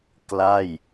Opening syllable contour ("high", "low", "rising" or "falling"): falling